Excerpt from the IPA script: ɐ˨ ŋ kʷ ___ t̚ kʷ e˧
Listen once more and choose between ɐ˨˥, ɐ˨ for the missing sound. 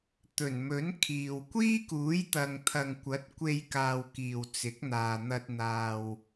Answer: ɐ˨˥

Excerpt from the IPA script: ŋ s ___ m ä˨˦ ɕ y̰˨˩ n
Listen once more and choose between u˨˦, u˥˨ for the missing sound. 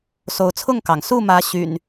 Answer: u˥˨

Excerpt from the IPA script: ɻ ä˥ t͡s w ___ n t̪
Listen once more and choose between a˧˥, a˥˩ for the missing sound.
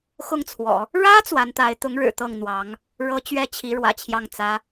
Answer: a˧˥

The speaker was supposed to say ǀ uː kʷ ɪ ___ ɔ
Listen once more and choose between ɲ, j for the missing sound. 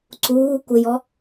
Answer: j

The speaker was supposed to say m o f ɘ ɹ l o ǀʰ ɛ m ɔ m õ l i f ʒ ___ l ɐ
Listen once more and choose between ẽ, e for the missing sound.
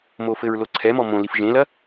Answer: ẽ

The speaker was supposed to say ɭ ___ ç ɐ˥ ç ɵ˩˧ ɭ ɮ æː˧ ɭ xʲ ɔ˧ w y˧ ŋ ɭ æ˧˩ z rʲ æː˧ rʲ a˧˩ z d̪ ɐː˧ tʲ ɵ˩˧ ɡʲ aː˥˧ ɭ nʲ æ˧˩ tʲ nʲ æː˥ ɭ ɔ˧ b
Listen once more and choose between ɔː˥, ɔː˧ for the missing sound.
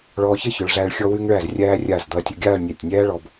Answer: ɔː˧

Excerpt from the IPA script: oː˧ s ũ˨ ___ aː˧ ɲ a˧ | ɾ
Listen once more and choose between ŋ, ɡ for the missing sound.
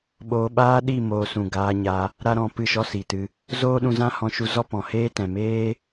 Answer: ɡ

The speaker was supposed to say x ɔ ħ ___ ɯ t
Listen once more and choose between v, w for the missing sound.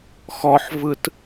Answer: v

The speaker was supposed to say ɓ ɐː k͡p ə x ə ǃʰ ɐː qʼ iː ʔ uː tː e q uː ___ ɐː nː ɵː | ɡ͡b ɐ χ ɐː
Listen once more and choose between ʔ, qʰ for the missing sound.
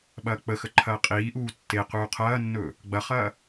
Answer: qʰ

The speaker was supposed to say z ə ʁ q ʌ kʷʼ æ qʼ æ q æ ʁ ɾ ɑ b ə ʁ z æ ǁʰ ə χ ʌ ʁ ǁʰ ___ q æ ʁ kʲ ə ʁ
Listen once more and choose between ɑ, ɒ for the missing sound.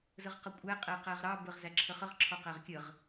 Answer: ɒ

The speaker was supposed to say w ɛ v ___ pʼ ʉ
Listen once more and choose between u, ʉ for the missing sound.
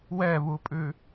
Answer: u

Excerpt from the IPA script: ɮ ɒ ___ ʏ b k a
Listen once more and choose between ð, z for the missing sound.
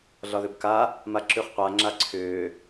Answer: ð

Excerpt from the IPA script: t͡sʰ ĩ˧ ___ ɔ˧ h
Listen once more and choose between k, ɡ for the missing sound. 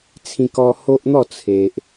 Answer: k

